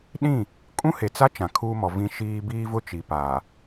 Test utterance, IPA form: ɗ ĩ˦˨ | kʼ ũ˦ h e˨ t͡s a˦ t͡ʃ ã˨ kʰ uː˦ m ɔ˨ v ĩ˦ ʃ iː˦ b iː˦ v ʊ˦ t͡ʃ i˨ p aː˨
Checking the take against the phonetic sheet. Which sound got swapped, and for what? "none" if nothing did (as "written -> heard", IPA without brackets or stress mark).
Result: none